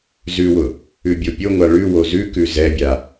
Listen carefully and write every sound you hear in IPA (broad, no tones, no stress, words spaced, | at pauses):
zʉwʊ | ʉbʲopʲoŋʷa ɭʉ wozʉkʉ zɛbʲa